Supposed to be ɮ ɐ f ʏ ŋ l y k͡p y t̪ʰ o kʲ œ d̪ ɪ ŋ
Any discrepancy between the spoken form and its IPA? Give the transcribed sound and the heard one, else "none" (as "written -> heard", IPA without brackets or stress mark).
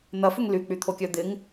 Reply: ɮ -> n̪